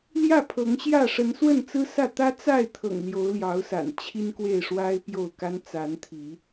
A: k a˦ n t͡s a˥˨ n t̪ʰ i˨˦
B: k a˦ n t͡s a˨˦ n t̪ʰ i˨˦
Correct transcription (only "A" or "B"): B